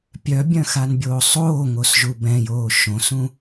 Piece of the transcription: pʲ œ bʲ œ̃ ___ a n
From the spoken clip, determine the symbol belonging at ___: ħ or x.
x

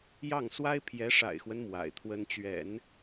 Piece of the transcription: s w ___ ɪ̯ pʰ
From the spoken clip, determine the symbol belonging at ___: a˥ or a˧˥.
a˥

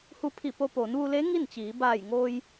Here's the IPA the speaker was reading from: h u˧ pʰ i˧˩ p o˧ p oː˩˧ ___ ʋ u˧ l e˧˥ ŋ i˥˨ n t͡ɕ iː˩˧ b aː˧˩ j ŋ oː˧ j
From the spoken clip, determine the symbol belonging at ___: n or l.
n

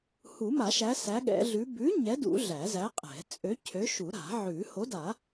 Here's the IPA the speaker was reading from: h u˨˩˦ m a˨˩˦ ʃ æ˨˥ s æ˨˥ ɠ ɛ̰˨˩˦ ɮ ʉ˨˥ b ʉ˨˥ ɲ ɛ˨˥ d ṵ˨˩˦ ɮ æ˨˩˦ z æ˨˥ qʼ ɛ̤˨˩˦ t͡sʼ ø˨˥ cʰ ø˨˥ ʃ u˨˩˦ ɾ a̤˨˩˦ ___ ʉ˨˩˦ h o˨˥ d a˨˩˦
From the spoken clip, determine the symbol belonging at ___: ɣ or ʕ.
ʕ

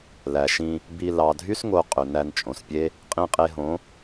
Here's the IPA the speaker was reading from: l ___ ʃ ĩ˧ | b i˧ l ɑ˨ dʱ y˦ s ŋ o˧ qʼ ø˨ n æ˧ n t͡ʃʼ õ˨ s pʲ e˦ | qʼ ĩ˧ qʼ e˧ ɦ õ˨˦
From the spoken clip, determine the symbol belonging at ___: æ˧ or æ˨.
æ˨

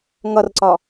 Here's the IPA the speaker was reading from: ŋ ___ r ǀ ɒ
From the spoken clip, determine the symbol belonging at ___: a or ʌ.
ʌ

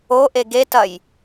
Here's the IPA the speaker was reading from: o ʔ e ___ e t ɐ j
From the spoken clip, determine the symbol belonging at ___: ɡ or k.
ɡ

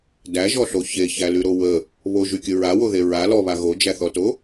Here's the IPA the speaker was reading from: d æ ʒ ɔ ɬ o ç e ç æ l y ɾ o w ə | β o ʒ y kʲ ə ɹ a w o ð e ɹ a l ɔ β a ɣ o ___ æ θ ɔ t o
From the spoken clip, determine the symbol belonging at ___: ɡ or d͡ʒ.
d͡ʒ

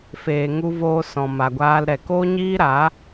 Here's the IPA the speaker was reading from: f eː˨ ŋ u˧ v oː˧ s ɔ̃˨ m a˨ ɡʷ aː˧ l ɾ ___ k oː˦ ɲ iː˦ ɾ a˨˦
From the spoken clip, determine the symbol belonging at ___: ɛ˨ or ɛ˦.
ɛ˨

